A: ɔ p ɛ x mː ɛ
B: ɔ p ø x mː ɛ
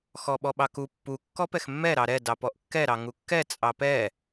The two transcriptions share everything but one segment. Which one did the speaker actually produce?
A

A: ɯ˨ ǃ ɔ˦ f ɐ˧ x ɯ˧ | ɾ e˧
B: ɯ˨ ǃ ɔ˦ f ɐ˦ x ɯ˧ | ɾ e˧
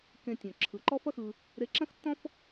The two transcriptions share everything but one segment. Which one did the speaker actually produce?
B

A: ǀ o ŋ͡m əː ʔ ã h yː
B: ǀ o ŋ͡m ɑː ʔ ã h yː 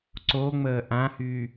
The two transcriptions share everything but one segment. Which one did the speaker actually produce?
A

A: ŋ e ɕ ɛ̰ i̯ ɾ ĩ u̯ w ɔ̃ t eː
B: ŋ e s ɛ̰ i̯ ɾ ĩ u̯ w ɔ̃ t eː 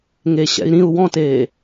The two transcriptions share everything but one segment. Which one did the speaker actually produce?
A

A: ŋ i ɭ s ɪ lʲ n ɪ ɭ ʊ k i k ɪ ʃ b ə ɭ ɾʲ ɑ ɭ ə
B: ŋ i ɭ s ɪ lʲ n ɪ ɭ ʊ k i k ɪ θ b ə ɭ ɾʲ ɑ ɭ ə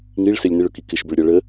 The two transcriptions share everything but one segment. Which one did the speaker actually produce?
A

